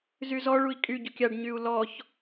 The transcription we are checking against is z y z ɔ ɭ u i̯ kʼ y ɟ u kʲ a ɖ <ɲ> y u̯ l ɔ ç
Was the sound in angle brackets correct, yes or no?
yes